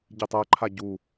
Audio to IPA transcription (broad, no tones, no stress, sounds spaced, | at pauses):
ɟ i tˤ ɜ ǃʰ a ɟ u